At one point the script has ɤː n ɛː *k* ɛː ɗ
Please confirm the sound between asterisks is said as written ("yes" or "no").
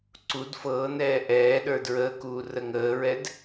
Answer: no